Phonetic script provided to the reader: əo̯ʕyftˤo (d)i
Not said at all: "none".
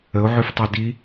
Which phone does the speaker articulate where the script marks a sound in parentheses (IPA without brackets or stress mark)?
d